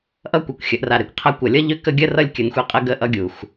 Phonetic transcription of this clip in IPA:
ʔ ʌ˦ kʷ ɛ˨ kʷ xʲ ə˨˦ ʔ r a˨ ɾ e˨ kʷ qʰ a˦ kʷ ʌ˨ lʲ ʌ˦ ʎ ʏ˦˨ k ə˦ ɡʲ ə˦ r ʌ˦ lʲ kʲ ə˨ n xʷ e˦ qʼ ə˦ ɡ ə˦ ʔ ʌ˦ ɡʲ u˨ x

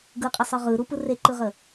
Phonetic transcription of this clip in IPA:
ɡ ɯ qʼ ɪ sˤ ɯ ʁ ɯ ɾ u p ɯ r e ǃ ɯ ʁ ə

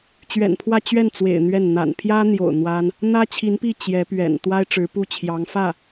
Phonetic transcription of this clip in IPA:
t͡ɕ ɥ ɛ̰˨˩ n pʰ w ä˥˧ t͡ɕ ɥ ɛ˥˩ n t͡s w ḛ˨˩ ɪ̯ n̪ ɥ ɛ˥˩ n n̪ a̰˨˩ n pʰ j ä˥ n̪ j o̰˨˩ ʊ̯ n̪ w a˥ n | n̪ ä˥ t͡ɕʰ i˧˥ n p i˥˩ t͡ɕ j ɛ˧˥ p ɥ ɛ̰˨˩ n t̪ w a˥ ɪ̯ ʈ͡ʂ ɻ̩˧˥ p u˥˩ t͡ɕʰ j ɑ˧˥ ŋ f ä˥˩

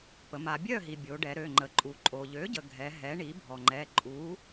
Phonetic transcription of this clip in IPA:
p ə˩˧ m a˩˧ bʲ œ˥˨ ɦ i˩ bʲ o˩˧ ɖ ɛ˩˧ ɾ ø˩˧˩ ŋ͡ǃ ə˩˧ ǃʼ u˩˧ ǃʼ o˩ ʎ ø˩˥ ɟ ə˩ ɡʱ ɛ˩˧ ɦ ɛ˩˥ ɳ i˩˥ bʱ ɔ˩ ŋ͡ǃ ɛ˩˧˩ ǃʼ u˩˥

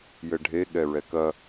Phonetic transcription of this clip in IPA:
j ɘ ɖʱ e ɠ ɛ ɹ ɛ k ɐ

